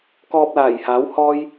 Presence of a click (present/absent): absent